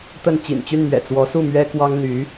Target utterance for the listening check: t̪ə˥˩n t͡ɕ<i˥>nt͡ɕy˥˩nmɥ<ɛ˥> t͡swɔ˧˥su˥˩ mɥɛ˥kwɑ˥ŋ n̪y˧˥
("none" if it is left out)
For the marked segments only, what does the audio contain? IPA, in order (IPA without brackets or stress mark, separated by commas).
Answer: ḭ˨˩, ɛ̰˨˩